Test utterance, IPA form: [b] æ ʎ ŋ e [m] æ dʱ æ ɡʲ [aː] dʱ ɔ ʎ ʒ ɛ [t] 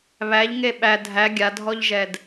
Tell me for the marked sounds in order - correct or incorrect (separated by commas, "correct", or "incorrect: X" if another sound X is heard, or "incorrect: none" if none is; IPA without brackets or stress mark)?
incorrect: β, incorrect: ɓ, incorrect: a, incorrect: d